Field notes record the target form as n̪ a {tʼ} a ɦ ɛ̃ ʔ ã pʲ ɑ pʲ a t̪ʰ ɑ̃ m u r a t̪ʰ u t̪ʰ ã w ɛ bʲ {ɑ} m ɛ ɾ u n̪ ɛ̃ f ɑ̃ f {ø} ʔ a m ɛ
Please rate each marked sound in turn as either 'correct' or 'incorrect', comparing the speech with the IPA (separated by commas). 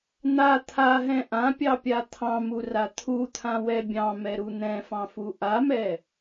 incorrect, incorrect, incorrect